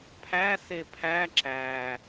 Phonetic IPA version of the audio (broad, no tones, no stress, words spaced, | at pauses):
pʰæ sepʰæ ǁæ